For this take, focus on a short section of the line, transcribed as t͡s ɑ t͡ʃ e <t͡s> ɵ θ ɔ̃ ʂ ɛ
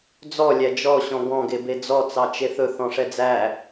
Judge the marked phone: incorrect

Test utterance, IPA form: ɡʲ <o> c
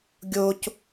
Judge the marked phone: correct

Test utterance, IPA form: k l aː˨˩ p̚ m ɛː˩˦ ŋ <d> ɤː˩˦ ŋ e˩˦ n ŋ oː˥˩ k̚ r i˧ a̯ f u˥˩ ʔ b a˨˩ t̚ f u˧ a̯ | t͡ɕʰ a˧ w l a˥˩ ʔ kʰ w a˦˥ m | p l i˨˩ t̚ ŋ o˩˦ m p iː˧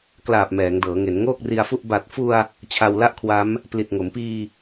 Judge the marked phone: correct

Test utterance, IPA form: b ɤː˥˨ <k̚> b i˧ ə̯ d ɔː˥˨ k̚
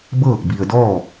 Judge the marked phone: correct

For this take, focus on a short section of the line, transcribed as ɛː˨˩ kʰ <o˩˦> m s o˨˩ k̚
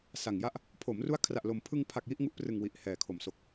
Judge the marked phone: correct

